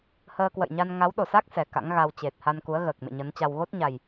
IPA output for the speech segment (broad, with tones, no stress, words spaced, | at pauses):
həː˧kwə̰˧˨jɲa˧n ŋa˨˦wɗo˧˩sa˦˥k̚ sɛ˨˩ka̰˧˥ŋɣa˧w t͡ɕe˨˩t̚ ha˧nku˨˦ə̯ɣəː˨˩k̚ mḛ˧˨ɲə˨˦nt͡ɕa˧w ɣo˦˥t̚ɲa˨˩j